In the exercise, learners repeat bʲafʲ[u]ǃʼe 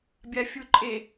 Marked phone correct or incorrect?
correct